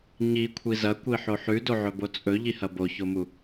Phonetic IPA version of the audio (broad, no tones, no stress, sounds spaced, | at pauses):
ɲ i kʷʰ i z ɐ kʷ i ħ o ħ ʉ d o ʕ ɵ b o t͡sʼ ɵ ʎ i h ɐ b o ç o m u